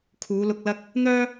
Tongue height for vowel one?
high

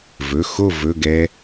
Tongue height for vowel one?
mid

